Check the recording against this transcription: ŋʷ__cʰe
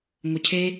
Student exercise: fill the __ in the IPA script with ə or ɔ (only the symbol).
ə